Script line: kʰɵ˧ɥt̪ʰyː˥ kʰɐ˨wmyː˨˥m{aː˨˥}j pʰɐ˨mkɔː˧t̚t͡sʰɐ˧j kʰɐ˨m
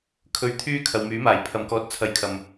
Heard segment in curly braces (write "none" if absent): aː˨˩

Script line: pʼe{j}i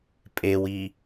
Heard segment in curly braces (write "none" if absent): w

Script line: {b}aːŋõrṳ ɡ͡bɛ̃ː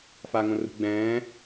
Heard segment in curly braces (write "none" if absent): f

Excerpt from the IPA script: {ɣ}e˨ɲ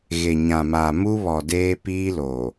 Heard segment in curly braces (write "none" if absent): ɣ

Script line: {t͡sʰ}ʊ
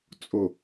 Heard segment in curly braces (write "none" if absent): t͡sʼ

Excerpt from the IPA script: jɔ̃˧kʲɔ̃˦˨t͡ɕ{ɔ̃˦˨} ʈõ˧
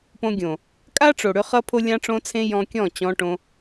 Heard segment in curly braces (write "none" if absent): ɔ̃˧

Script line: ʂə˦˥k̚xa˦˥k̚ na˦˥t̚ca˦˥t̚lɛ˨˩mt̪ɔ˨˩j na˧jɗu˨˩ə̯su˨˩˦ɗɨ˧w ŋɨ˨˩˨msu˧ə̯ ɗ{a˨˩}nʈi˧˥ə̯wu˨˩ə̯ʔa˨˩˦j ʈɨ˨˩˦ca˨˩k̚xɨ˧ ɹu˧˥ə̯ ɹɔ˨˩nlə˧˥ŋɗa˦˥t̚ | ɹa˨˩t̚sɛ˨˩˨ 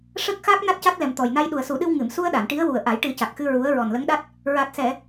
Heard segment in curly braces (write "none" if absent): a˨˩˨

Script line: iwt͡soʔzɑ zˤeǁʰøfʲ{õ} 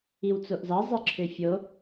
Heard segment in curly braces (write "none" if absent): o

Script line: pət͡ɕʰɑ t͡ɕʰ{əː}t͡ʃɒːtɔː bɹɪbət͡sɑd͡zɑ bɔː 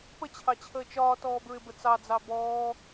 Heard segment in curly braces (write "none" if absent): əː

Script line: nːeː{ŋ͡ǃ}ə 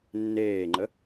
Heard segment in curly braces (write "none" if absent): ŋ͡ǃ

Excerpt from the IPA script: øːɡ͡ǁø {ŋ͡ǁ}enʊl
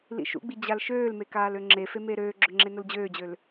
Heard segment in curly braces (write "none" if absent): ŋ͡ǁ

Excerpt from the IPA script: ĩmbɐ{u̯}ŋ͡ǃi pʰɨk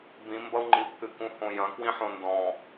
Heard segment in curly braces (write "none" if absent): u̯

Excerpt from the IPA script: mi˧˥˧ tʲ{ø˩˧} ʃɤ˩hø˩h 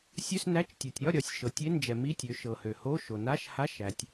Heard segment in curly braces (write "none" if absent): ø˩˧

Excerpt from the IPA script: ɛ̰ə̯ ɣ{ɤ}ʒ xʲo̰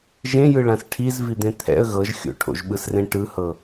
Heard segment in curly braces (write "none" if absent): ɤ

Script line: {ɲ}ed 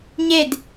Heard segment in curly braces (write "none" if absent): ɲ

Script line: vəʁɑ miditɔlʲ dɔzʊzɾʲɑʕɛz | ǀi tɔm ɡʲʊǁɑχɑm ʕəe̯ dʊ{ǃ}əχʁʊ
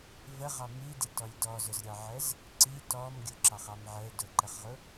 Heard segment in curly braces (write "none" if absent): ǃ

